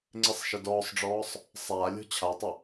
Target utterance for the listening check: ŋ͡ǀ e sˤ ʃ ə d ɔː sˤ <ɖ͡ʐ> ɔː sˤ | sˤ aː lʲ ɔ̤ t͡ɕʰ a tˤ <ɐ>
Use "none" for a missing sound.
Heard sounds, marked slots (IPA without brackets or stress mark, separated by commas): ɖ͡ʐ, ə